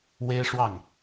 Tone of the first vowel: high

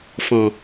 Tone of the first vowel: low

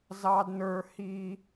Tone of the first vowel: high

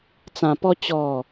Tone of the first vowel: low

